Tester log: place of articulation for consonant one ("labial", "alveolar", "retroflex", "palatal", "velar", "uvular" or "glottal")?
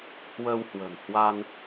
glottal